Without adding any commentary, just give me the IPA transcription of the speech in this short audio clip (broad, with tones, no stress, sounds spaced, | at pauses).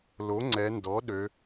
l o˩˥ ŋ͡ǀ ɛ˩˧ n d ɔ˩˥ ɗ ø˩˧